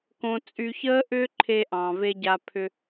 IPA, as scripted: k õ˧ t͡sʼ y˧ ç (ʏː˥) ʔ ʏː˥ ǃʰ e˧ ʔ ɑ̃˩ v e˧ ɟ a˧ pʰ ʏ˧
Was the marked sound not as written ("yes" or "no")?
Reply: yes